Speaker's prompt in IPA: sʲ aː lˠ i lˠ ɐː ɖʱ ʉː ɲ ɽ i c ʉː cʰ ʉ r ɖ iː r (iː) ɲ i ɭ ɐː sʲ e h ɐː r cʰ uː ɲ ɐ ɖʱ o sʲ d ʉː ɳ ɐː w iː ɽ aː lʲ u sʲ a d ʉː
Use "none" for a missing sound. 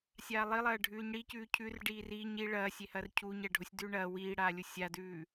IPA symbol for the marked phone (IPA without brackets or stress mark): iː